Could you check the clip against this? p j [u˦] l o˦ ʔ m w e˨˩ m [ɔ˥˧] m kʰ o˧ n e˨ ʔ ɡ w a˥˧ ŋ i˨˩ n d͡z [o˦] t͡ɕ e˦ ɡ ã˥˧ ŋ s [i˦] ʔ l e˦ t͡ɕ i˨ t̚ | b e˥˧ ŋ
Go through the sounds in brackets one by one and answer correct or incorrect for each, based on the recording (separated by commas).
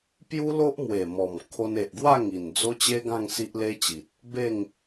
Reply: correct, incorrect, correct, correct